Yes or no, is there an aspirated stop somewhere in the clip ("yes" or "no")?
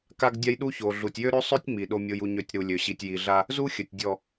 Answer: no